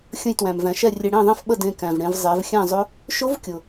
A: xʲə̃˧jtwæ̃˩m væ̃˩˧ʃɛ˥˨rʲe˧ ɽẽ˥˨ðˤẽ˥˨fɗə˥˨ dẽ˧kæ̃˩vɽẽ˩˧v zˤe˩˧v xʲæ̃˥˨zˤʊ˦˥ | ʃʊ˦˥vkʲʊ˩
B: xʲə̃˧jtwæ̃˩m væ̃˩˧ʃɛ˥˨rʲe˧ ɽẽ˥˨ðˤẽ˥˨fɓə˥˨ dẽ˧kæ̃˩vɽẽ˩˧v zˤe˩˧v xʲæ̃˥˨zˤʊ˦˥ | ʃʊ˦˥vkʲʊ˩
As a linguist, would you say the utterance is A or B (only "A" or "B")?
B